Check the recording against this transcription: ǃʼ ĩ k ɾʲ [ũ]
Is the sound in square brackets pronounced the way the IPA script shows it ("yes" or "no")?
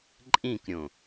no